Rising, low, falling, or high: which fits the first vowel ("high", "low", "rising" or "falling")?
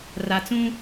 low